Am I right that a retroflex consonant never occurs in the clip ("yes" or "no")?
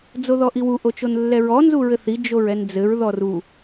yes